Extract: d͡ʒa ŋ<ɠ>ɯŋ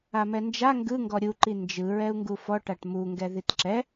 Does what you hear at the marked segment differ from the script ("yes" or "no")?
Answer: yes